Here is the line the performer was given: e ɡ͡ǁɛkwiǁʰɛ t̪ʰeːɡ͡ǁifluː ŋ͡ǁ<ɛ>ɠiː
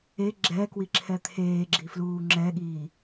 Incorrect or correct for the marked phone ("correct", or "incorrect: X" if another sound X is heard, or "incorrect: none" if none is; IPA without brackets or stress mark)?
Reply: correct